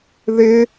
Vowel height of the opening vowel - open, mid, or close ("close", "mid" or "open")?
close